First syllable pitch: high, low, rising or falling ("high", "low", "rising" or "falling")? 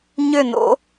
falling